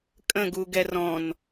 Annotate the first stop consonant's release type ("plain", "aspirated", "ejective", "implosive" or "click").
ejective